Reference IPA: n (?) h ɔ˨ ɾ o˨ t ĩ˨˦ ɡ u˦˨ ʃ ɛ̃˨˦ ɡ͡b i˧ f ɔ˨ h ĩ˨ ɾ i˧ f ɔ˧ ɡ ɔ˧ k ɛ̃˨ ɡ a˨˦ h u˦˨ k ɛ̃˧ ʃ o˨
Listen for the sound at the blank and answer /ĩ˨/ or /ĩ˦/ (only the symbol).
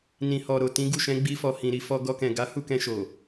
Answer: ĩ˨